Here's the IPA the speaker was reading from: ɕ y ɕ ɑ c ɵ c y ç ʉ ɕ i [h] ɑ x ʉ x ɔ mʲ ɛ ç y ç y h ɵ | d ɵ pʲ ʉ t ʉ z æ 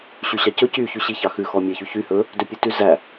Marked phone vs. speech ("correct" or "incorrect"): incorrect